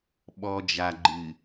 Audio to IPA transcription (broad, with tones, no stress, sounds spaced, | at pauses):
ɓ ɔ˨ d͡ʒ a˨ ɡ͡ǃ ɨ˨